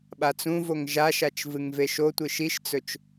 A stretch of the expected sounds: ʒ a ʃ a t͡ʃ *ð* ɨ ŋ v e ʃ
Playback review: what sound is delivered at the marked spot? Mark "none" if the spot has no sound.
v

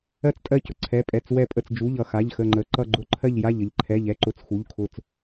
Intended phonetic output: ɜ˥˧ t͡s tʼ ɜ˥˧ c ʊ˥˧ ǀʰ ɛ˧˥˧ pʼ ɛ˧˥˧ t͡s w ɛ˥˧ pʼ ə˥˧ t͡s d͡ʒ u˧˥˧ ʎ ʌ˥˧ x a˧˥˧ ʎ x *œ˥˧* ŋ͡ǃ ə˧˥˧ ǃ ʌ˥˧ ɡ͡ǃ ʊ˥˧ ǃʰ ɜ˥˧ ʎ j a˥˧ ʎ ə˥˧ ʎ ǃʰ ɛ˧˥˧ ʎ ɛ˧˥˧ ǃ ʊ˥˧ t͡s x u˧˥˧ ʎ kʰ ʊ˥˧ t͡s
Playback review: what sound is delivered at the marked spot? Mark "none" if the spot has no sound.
ə˥˧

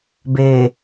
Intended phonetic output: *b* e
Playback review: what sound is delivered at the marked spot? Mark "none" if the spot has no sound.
b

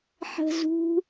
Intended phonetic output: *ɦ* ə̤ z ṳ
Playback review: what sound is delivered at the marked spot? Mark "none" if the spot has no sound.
ħ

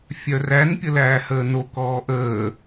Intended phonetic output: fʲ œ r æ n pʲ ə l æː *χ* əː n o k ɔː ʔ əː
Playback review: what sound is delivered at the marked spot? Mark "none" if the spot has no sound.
h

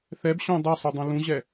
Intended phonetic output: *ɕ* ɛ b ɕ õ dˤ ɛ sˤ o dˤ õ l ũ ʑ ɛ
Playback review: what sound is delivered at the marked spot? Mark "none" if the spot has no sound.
θ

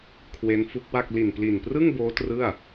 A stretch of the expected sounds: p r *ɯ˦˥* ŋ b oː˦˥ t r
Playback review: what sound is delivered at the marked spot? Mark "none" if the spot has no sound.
ɯ˥˩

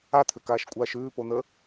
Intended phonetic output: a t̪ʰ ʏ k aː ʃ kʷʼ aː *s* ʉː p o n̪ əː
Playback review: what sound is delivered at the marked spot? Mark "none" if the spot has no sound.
ʃ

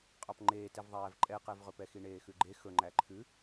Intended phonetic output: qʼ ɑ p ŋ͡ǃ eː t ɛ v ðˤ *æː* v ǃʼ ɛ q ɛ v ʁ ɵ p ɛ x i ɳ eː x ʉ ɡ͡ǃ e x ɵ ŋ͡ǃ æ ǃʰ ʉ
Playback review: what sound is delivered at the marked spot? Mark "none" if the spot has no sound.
æː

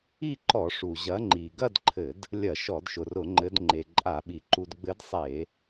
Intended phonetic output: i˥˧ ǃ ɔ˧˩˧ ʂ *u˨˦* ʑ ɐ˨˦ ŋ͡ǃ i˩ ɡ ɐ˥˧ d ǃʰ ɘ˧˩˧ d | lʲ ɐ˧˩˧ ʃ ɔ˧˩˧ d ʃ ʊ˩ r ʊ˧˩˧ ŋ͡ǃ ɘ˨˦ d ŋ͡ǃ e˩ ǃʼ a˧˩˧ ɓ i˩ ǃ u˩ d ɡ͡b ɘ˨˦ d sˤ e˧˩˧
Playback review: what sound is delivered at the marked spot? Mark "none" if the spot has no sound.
u˩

